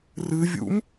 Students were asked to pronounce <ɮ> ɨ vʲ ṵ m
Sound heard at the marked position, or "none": r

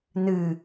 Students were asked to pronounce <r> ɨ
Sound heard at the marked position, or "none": n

